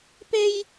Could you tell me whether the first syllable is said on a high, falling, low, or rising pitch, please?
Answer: high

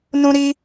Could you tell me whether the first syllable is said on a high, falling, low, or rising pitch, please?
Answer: high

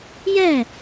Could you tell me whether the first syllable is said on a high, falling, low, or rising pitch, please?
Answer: falling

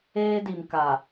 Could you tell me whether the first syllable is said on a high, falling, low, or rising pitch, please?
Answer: high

